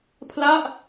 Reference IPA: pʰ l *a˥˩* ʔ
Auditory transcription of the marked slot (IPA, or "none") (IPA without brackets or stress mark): a˥˩